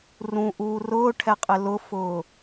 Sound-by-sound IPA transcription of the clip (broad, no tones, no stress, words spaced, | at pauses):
rũʔuː rʊːʈʰɛqʼɪ lʊfʊː